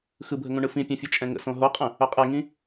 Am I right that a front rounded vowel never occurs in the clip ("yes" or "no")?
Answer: no